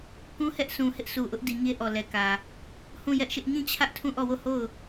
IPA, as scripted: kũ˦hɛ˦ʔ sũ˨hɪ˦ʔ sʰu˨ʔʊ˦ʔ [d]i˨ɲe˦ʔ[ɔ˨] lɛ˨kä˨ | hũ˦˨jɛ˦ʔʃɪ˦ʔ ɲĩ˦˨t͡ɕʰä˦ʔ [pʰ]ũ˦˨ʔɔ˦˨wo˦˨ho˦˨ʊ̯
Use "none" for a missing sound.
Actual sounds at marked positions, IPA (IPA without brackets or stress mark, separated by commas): d, ɔ˨, tʰ